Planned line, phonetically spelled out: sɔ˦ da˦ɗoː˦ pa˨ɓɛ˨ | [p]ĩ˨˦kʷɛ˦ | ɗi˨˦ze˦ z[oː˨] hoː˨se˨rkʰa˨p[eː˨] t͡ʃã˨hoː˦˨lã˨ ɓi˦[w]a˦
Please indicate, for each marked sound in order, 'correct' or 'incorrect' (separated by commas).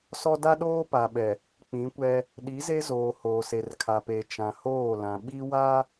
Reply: incorrect, correct, correct, correct